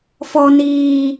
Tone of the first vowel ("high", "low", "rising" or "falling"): low